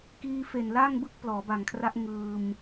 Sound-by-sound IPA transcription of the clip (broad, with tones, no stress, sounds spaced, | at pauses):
k iː˧ f e˨˩ n l a˥˩ ŋ b ɯ˥˩ k̚ p l ɔː˩˦ b a˨˩ ŋ kʰ r a˦˥ ʔ ŋ ɯː˧ m